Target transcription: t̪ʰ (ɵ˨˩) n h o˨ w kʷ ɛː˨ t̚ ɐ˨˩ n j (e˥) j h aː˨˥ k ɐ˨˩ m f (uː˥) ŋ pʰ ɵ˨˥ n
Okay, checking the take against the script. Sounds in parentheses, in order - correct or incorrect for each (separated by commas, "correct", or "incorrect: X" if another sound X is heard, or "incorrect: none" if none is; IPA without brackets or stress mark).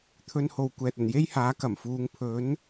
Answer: incorrect: ɵ˧, correct, incorrect: uː˨˧